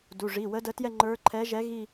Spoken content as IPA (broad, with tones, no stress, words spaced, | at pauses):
du˩˧˩ʐi˩˧˩ wə˧˥də˧˥tjɛ˥˧ ŋ͡ǃə˞˧˥ǃʰɛ˧˥ʒɛ˧˥ ɣi˥˧